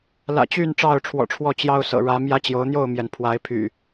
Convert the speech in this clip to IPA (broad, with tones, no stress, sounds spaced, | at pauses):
l ä̰˨˩ t͡ɕ y˥˨ n ʈ͡ʂ ɑ˥˨ ʊ̯ ʈ͡ʂʰ w ɔ̰˨˩ ʈ͡ʂʰ w ɔ˥˨ t͡ɕ j ɑ˦ ʊ̯ s ɤ̰˨˩ ɻ ä˨˦ m j ä˦ t͡ɕ j o˨˦ ʊ̯ n̪ j o˥˨ ʊ̯ m j ɛ˩ n pʰ w a˨˦ ɪ̯ pʰ y̰˨˩